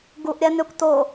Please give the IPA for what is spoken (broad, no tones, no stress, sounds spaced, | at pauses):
ɡ u ʔ ɾʲ æ n ø kʷ t o